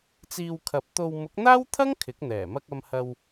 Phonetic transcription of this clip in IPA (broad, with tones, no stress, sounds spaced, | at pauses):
t͡s iː˧ w kʰ ɐ˨˥ p̚ t̪ o˧ w m ʊ˨˥ k̚ n̪ aː˥ w t̪ʰ ɐ˥ ŋ kʰ ɪ˨˥ k̚ n̪ ɛː˨˩ m ɐ˧ k̚ ɐ˧ m h ɐ˧ w